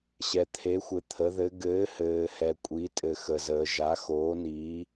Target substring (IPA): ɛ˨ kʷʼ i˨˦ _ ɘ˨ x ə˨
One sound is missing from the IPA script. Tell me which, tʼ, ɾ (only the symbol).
tʼ